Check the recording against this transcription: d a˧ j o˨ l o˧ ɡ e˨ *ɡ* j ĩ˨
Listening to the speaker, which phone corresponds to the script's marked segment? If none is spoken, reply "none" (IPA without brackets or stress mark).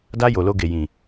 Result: none